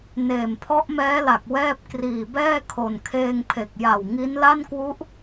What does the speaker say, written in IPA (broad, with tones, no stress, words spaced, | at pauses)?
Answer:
neː˨˩mpʰɔ˦˥ʔmɛː˦˥la˨˩k̚ wɛː˥˩p̚ kriː˨˩bɛː˥˩ kʰo˨˩nkʰeː˧ŋpʰe˨˩k̚ ja˨˩w ŋi˦˥n la˥˩nkwu˦˥ʔ